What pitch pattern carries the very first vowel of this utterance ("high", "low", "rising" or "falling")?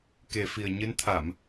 low